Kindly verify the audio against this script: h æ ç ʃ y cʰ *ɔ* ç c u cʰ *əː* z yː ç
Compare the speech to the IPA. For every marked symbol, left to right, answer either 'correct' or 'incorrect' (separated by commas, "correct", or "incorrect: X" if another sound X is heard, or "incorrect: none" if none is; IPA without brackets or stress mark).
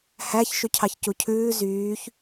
incorrect: ɑ, incorrect: ʉː